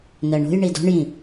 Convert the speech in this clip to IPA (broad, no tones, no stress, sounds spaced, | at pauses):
n ɜ ɳ o̤ j ɳ i d ɔ̤ ɳ j ĩ